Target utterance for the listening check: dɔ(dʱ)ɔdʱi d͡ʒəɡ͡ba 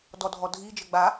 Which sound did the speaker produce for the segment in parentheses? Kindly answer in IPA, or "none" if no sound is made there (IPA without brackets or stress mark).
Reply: dʱ